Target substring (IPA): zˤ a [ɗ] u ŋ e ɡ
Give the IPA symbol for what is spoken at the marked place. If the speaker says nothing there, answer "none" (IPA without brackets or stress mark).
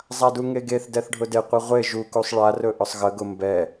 d